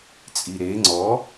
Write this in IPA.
t͡sʼ i ɾ e ŋ͡ǀ ɔ

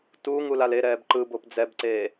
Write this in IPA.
t uː ŋ u l a l e ɾ ɛː b ǃ ɯ b o p d͡z ɛ b ǀ eː

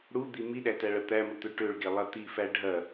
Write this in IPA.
ɽ u d̪ i m i ɗ æ t æ ɭ ɐ t̪ æ m ə t̪ ø ʈ ø ɭ ɡ e lˠ ɐ t̪ i f æ ɖʱ ɐ

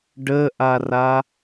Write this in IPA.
ɖ ə ʔ a r a

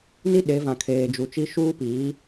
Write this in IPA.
n i˦ ɗ e˨˦ v ã˨ kʰ eː˨ d͡ʒ u˨ t͡ʃ i˦ ʃ uː˦ p iː˨˦

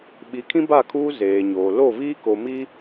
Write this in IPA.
ɓ i˨˦ kʰ ĩ˦ b a˦˨ kʰ uː˦ z eː˨ ɲ oː˨ l o˦˨ v iː˦ k o˨ m i˦

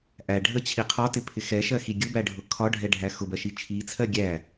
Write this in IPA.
ʔ æ ɖʱ ə t͡ɕʰ i qʰ ɒ t ɪ pʰ ɪ x ɛ ʃ ɜ x i ɡʲ ʊ b æ ɖʱ ʊ kʰ ɒ ɖʱ ɛ ɖʱ æ x ʊ b ɜ ʃ i t͡ʃʰ i t͡sʰ ɜ ɡʲ æ

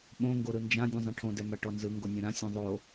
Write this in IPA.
ɓ õ ŋ ɡ o ɾ ɯ n d͡ʒ ã dʲ ũ zˤ ɛ̃ ʈʰ õ d ɛ m a ʈ ɔ n z ɯ ŋ ɡ o nʲ ɛ̃ ɾ ã sʲ ũ ðˤ o

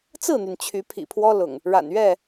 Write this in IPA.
t͡s ɹ̩˥˨ n̪ y˩ n t͡ɕʰ y˨˦ pʰ ḭ˨˩ pʰ w ɔ˦ l ʊ̰˨˩ ŋ | ɻ a̰˨˩ n ɥ ɛ˥˨

